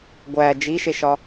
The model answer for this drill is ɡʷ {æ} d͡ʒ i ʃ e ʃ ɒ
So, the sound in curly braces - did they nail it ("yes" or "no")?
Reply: yes